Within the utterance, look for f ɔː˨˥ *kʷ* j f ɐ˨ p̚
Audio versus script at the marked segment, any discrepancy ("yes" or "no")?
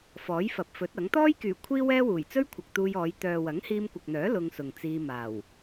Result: yes